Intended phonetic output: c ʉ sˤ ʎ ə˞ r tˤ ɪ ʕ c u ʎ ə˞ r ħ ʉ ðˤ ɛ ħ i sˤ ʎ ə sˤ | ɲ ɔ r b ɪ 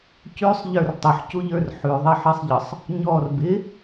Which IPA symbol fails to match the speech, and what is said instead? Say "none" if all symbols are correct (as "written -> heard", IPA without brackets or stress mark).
ʕ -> ħ